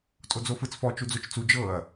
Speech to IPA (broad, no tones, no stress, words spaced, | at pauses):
tʼod͡zofɯt͡s fɔ t͡ʃud͡zot͡ʃt͡su d͡ʒɤɐ̯